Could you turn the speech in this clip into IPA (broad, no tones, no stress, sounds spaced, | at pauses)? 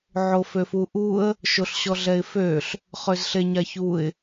ʕ o f ø f u ʔ u ə̯ | ʃ o ɬ ɕ ɔ ɮ ɛ ɪ̯ f ø ɬ | χ ø z ɬ e ɲ a ç u ɪ̯